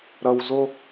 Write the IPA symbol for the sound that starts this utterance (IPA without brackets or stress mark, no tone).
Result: ɾ